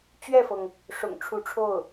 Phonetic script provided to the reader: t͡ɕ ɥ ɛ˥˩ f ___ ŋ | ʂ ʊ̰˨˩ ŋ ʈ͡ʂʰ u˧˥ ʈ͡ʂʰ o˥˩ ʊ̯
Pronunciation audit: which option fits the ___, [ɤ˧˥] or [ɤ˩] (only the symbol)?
ɤ˩